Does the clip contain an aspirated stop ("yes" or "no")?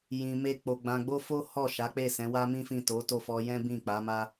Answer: no